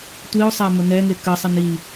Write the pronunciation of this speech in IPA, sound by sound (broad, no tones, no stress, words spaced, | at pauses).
tʷiʊ̯sˤa mənɛŋe kəsˤən i